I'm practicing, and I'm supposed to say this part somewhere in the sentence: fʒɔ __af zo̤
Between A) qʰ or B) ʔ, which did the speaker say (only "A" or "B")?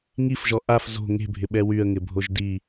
B